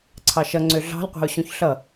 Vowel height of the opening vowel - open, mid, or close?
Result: open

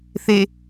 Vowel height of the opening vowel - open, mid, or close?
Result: mid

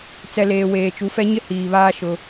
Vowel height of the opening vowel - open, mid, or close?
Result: mid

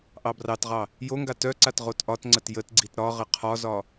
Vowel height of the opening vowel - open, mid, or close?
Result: open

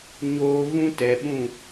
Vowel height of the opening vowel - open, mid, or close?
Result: mid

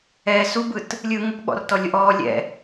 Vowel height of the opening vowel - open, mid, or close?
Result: mid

